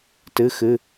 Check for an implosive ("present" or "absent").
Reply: absent